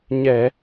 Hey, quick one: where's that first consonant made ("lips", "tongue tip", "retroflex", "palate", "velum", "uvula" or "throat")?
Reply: palate